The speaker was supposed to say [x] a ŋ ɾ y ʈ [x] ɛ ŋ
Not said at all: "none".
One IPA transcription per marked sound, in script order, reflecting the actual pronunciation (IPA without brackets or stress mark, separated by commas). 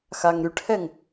x, h